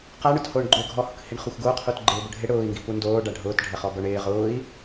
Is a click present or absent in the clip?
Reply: present